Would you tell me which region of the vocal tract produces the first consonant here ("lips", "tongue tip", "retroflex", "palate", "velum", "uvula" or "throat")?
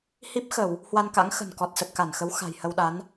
throat